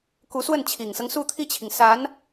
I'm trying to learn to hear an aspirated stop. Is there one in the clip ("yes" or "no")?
yes